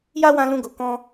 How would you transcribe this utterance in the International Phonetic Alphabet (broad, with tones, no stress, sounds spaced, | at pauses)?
j a˦ w ã˧ l ũ˧ ɡ o˨ k ɔ̃˧